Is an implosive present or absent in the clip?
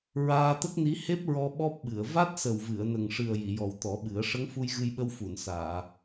present